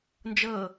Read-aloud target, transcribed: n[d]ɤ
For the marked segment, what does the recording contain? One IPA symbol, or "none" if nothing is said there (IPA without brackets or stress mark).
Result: d͡ʒ